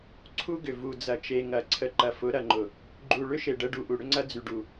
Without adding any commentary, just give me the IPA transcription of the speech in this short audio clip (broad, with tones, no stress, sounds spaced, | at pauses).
ǀʰ u˦ ɡ ʏ˨ v u˨ d͡z ɐ˨ t͡ʃ e˨ ŋ ɐ˨ ǀʰ ə˨ ǃ ɐ˨ f ʊ˨˦ ɾ ɐ˨ ŋ͡ǃ ʊ˨ | ɡ͡ǃ u˨ ɭ ʏ˦ ʃ e˨ ɖ ə˦ ɖ u˨ ʔ u˨ ɽ ʏ˦ ŋ͡ǀ ɐ˦ d͡z y˨ ɖ u˨